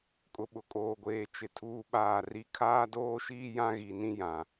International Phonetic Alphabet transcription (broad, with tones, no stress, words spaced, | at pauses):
kʼʊ˨ɓʊ˨kʼoː˨ɡʷeː˨ t͡ʃɪ˨ tʰuː˦ɓaː˦˨ri˦ kʰaː˦doː˦ʃiː˦ jã˦ɣi˨ nĩ˦jã˨